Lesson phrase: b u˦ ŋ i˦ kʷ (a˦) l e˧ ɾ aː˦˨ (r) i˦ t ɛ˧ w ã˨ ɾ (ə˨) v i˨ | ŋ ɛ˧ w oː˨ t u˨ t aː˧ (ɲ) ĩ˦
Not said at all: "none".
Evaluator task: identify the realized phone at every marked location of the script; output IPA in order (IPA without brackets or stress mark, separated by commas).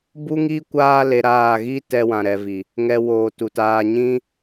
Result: aː˦, ɣ, ɛ˨, ɲ